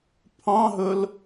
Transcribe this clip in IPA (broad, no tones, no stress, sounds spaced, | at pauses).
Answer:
pʰ ɑ̃ ɦ ɵ l